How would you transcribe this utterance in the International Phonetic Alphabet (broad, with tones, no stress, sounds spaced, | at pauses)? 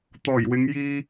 t̪ ɔː˨˩ j w ɪ˨˧ ŋ j iː˧